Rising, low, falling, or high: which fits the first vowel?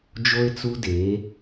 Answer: high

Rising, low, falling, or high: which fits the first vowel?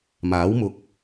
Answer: rising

